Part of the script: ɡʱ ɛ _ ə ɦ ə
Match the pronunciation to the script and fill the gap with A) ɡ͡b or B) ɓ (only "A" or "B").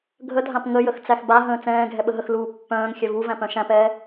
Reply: B